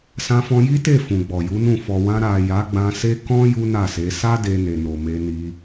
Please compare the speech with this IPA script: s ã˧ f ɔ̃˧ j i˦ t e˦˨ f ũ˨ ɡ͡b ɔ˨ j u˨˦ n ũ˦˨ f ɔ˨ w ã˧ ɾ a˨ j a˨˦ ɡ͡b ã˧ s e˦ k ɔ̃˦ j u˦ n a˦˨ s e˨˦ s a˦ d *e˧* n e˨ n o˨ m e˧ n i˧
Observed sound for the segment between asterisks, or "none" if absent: e˧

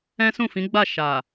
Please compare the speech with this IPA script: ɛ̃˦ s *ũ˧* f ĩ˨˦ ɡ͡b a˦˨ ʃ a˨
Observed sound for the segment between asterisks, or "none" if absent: ũ˦˨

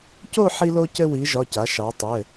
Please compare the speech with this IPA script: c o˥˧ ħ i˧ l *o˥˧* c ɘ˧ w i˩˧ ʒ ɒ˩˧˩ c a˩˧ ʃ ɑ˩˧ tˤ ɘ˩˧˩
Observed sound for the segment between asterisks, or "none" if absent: o˧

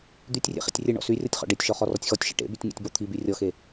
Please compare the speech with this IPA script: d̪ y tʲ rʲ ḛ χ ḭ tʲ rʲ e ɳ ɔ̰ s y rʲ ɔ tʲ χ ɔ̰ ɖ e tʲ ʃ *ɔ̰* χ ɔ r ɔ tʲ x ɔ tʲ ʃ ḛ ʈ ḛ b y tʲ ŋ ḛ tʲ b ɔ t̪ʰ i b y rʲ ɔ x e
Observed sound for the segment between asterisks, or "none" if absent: ɔ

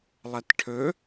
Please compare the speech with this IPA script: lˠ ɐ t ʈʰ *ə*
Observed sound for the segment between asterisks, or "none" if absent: ɵ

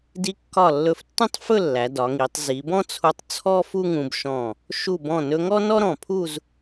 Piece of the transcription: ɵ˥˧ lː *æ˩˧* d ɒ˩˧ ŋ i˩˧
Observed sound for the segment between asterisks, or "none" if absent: æ˩˧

